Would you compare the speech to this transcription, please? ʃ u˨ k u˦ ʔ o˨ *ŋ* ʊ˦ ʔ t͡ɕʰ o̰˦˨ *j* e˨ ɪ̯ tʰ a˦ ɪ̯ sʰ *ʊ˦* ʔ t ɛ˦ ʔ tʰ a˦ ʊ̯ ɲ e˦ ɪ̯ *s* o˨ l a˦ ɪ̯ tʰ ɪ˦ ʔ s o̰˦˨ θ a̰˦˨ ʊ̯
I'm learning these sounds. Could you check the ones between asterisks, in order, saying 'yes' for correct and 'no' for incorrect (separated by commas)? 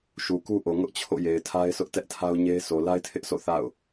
yes, yes, yes, yes